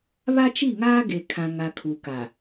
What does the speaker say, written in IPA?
β a˦ t͡ʃ i˦˨ ŋ aː˦ ɡ e˨ kʰ ã˨ ŋ a˨ kʰ u˨ k a˨

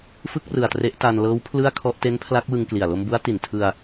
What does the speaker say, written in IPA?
f ɯ˥˩ k̚ r ɯ˨˩ a̯ t r e˦˥ ʔ t aː˧ n l ɤː˦˥ w pʰ l ɯ˥˩ a̯ kʰ ɔ˥˩ ʔ t e˦˥ n pʰ l a˦˥ k̚ w ɯ˧ ŋ k l i˨˩ a̯ l o˧ m b u˦˥ a̯ t i˨˩ n tʰ ɯ˧ a̯

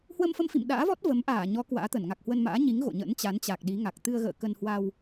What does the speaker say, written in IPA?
h w ə˧ m f ə˧ m f ḭ˧˨ m ɗ a̰ː˧˥ v ɔ˦˥ t̚ v ə˨˦ m ʔ aː˧˩ ɲ ɔ˨˦ k w a̰ː˧˥ t̪ ə˧˩ n ŋ a˨˩ k̚ h w ə˧ n m a̰ː˧˥ ɲ i˨˦ ŋ ɣ o̰˧˨ ɲ ə̰˧˥ n t͡ɕ a˨˦ n t͡ɕ a˨˩ k̚ ɗ i˨˦ ŋ a˨˩ k̚ t̪ ɨ˧ ə̯ ɣ ə̰ː˧˨ k ə˧ n h w a˧ w

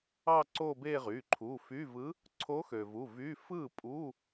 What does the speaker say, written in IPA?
ɑ˥˧ ǀ o˥˧ b e˥˧ ʁ y˩˧˩ ǃʰ u˩˧˩ f y˧˥˧ v ɯ˧˥ | ǀʰ o˧˥ x ø˩ v u˩˧˩ v y˧˥˧ f ɯ˥˩ pʼ u˧˥˧

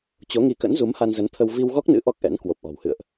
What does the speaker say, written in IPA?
t͡ɕ o˨˦ ŋ i˨˦ k ə̰˧˥ n z u˨˦ m h a˧ n z ə˨˦ n t̪ʰ ə˧ w v i˧ w ɣ ɔ˦˥ k̚ n ɨ̰˧˥ ʔ ɔ˦˥ k̚ ʔ ɛ̰˧˥ n k w o˨˩ p̚ ʔ ɔ̤˨˩ w h ɨ̰˧˨ ə̯ ʔ

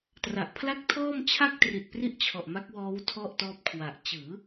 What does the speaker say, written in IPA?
t r a˨˩ ʔ pʰ l a˥˩ k̚ tʰ ɔː˥˩ m t͡ɕʰ a˥˩ k̚ t r i˨˩ t̚ p r i˥˩ ʔ t͡ɕʰ ɔ˨˩ ʔ m a˦˥ k̚ w ɔː˦˥ w tʰ ɔ˥˩ ʔ t ɔː˦˥ p̚ kʰ w a˨˩ ʔ t͡ɕ ɯː˩˦

